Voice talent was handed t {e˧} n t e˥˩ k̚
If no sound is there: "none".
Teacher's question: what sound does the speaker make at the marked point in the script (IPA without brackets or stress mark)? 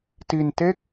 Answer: i˧